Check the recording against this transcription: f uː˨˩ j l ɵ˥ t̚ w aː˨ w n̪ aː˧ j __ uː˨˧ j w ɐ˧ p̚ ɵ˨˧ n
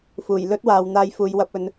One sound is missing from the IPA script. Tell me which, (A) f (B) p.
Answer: A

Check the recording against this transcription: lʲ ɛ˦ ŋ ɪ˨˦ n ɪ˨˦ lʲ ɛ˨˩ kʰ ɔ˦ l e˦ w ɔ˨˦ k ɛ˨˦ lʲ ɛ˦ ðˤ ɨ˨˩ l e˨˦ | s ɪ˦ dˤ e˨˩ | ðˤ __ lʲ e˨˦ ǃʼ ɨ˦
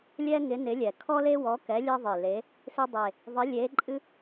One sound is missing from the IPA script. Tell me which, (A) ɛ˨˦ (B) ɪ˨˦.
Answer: B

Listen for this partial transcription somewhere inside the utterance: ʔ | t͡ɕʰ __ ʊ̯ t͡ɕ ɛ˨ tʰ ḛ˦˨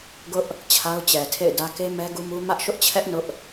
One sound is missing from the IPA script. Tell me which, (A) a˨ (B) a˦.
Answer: B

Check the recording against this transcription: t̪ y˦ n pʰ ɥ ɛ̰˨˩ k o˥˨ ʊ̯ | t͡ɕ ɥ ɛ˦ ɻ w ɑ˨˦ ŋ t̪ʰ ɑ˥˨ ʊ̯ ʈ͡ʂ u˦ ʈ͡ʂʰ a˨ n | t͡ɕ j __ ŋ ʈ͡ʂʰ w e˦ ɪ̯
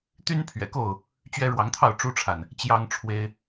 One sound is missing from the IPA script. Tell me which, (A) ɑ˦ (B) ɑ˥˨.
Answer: A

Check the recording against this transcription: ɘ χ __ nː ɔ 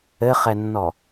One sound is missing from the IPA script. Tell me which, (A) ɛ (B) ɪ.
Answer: A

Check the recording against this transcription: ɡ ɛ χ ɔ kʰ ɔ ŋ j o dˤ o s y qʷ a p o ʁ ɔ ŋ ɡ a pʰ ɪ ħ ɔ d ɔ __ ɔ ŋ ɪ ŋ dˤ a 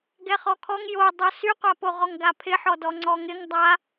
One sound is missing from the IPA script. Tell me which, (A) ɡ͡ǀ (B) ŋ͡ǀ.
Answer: B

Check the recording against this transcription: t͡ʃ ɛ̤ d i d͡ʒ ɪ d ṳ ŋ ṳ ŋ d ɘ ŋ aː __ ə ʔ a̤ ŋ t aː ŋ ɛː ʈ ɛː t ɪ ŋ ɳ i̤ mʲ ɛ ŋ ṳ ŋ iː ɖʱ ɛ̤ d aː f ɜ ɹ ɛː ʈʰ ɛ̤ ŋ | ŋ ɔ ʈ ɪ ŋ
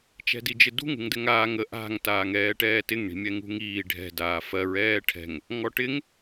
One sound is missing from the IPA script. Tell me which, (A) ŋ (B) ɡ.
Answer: A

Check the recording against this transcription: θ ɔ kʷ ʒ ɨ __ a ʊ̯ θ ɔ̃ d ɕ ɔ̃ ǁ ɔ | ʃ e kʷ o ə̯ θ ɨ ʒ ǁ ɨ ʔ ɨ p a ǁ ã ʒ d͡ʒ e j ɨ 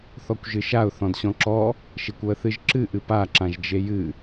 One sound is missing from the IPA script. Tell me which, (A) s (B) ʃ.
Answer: B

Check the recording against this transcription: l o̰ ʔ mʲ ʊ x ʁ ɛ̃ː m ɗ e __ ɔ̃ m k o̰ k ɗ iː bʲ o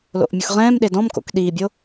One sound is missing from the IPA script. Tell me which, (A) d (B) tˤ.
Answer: A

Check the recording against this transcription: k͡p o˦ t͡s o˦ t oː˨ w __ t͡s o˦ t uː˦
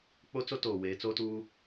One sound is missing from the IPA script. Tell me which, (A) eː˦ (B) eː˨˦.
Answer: B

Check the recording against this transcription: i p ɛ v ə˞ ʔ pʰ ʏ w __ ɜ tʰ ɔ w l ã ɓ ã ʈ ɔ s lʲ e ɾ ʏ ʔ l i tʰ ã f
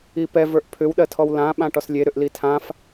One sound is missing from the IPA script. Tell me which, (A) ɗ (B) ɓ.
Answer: A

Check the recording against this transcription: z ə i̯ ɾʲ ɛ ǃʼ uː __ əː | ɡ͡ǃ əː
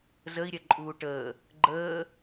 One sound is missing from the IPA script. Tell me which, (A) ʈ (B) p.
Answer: A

